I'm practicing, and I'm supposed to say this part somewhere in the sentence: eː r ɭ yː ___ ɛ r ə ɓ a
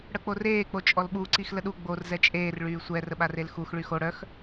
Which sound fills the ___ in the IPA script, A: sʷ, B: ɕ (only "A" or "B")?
A